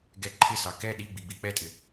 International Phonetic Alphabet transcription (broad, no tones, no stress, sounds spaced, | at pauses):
ɡ ɛ ǃʰ ɪ s ɑ k ɛ ɗ i ɡ͡b i ɡ͡b i k͡p ɛ tʼ ɪ